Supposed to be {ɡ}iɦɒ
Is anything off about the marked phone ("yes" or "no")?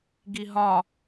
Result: no